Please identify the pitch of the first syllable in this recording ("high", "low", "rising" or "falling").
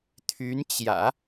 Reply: rising